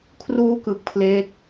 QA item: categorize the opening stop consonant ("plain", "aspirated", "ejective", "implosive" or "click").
aspirated